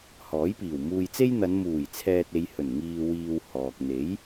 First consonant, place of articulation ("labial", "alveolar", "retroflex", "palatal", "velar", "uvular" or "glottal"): glottal